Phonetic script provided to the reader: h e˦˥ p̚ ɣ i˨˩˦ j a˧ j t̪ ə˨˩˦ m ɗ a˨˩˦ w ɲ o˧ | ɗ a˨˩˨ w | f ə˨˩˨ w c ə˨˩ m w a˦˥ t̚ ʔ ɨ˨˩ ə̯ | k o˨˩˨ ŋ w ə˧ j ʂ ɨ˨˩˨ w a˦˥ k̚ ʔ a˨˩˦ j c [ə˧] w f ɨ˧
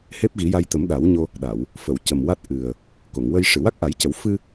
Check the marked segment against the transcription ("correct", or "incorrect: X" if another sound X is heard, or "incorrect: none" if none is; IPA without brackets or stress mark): incorrect: ə˨˩˦